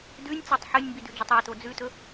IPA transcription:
d ʉ nʲ t͡s o tˤ ħ ɨ nʲ m b i d ʉ d͡ʒ ɵ tˤ a t o d͡z ʉ t ɵ

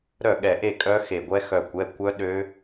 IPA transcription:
ɾ œ˥˨ ɠ ɛ˧˩ ʔ e˥˨ kʼ œ˦˥ x e˧˩ ɡʷ ɛ˦˥ x œ˧˩ kʷ ɛ˩˧˩ kʷ œ˦˥ ɗ ø˦˥

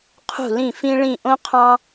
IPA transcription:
qʰ ṳ˧˩ l ĩ˧˩ f ĩ˧ ɭ ĩ˧˩ ʔ õ˧ qʰ ɑ̃˧

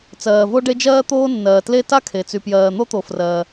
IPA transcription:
t͡s ɜː˩ v o˥ ɖ e˥ d͡ʒ ɜː˥ t̪ oː˥ nː ɜː˩ t l e˥ t a˥ kʰ e˩ t͡s y˩ p j ɜː˩ n̪ o˥ t̪ o˩ f r ɜ˩

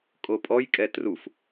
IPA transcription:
kʼ o pʼ ɔ j kʼ ɛ t r u f

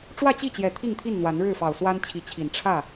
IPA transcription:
ʈ͡ʂ w ä˥˨ t͡ɕ i˥˨ t͡ɕ j ɛ˨˩ t̪ʰ i˥˨ ŋ t̪ʰ i˥˨ n n̪ w a˨˦ n ɻ ɻ̩˥˨ f ɑ˨˩ ʊ̯ s w a˦ n t͡ɕʰ i˨˦ t͡ɕʰ i˨˩ n ʈ͡ʂʰ ä˥˨

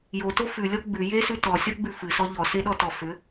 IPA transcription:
j o t o f ʉ lʲ ɔ ɡ͡b ʉ j e s ʉ t ɔ sʲ ɔ ɡ͡b ʉ f ɨ s ɔ ʎ ɔ s e ɗ ɔ t ɔ f ʏ

